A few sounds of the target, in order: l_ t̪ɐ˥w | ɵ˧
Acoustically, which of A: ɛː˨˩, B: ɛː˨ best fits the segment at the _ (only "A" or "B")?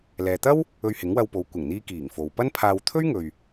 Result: B